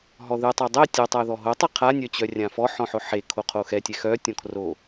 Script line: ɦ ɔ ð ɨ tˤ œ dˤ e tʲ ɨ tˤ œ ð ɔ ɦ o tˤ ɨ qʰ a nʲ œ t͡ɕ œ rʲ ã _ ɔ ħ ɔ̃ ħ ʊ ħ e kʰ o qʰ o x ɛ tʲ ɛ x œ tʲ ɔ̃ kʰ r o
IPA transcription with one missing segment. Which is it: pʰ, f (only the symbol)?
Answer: f